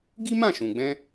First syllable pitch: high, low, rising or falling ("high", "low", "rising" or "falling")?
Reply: high